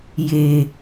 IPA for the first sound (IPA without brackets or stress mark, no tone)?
j